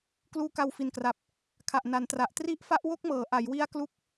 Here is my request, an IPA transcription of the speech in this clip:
k l uː˦˥ k a˧ w f i˨˩ n k r a˨˩ p̚ | kʰ a˨˩ ʔ n a˩˦ n t r a˨˩ ʔ t r i˥˩ ʔ f a˥˩ ʔ w o˥˩ k̚ m ɤː˩˦ ʔ a˩˦ j w i˦˥ a̯ k l u˦˥ k̚

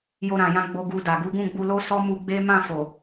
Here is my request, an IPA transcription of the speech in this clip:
j o˧ ɾ ã˨ j ã˧ ɡ͡b o˧ ɡ u˧ d a˨ ɡ u˨˦ ɡ ũ˦˨ ɡ͡b u˧ l o˦ s ɔ˦ m u˧ ɡ͡b e˦ m ã˦˨ f o˨

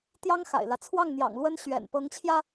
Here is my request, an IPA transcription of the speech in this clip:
t̪ j ɑ˥ ŋ x a̰˨˩ ɪ̯ l ä˦ t͡sʰ w ɑ˥˩ ŋ n̪ j ɑ̰˨˩ ŋ l w ə˥ n ɕ ɥ ɛ̰˨˩ n p ɤ˧˥ ŋ t͡ɕʰ j ä˧

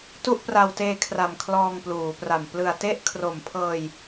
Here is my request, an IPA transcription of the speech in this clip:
t u˥˩ ʔ p r a˧ w t eː˧ kʰ r a˨˩ m kʰ l ɔː˧ ŋ p l uː˩˦ p r a˨˩ m p l ɯ˨˩ a̯ t e˥˩ ʔ kʰ r o˨˩ m pʰ ɤː˧ j

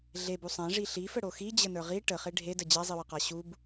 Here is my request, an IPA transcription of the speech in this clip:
ɮ e b u sˤ ã ʐ i ɬ i f ə ɽ o x i d͡ʑ ə n ə˞ ʁ i ʈ ə χ e ɖʱ e d ə d͡ʑ a zˤ i w ə q a ɕ u b

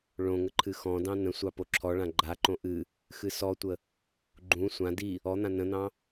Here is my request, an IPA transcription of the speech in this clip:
ɭ õ ŋ ə ǃʰ ɨ x ɔ̃ d ɑ̃ n ə̃ sʷ ɑ p o ǁʰ ɔ ɭ ã ɡ͡ǃ a ǃ õ ʔ ɨ | x ɨ s ɔ tʷ ə | ɡ͡ǃ ũ sʷ ã d i | ɔ n̪ ã n ə̃ n̪ ɑ̃

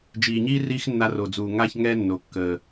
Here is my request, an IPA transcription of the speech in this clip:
d͡ʒ iː˨ ɲ iː˦ r iː˦ x nː a˧ r o˨ d͡z uː˨ ŋ a˦ ç ŋ ɛ˦ nː o˨ kː əː˨

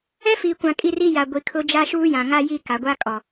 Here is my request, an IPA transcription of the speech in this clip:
ɛ˦ f iː˨ kʷ ã˨ kʼ i˦˨ r i˦ j a˨ ɡʷ i˨ kʰ ʊ˦ d͡ʒ a˦ ʃ uː˦ j ã˨ ŋ a˦ j i˦ k a˨ ɡʷ a˦ kʼ ɔ˨

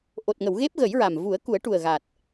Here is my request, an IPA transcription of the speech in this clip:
ʔ o˨˩ t̚ ŋ ə˨˩˨ w ɣ e˦˥ p̚ ɣ ə˨˩˦ j ɹ a˨˩ m v u˨˩˦ ə̯ k u˨˩˦ ə̯ ʈ u˨˩ ə̯ ɣ a˨˩ t̚

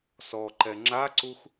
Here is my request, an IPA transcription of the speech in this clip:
s ɔ ǃ ɛ ŋ͡ǁ a ǀ u x

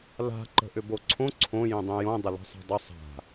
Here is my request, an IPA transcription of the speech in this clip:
l a̤ ǃ ə̤ ʔ ʏ b o ǀʰ õ ǀʰ õ j ĩ dˤ ĩ j õ dˤ ə l a̤ sˤ a̤ dˤ ə sˤ a̤

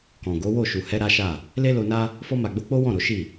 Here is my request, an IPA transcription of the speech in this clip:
k ɔ̃˨ ɡ o˨˦ w o˦˨ ʃ u˨ h ɛ˧ ɾ a˦ ʃ a˦˨ | l e˦ l o˧ n a˦ | f ɔ˧ m a˨ ɡ͡b o˧ k͡p o˦ w ɔ̃˦˨ ɾ o˨˦ ʃ i˦˨

